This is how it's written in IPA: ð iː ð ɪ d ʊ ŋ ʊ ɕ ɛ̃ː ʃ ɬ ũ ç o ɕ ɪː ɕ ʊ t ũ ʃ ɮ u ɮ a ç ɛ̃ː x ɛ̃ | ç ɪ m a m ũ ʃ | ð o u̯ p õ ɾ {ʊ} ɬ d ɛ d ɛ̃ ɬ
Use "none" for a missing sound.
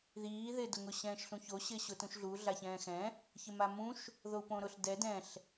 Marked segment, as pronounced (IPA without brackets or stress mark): ʊ